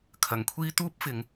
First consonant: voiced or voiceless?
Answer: voiceless